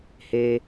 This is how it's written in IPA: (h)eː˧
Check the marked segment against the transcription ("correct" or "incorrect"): correct